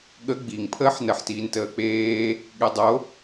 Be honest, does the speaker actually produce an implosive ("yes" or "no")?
yes